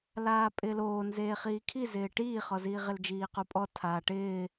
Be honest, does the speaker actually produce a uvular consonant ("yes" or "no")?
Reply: yes